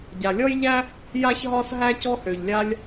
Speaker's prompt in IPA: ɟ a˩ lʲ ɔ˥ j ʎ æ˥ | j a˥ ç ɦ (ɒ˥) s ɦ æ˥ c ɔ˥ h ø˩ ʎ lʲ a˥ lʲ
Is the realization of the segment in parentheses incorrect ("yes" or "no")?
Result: no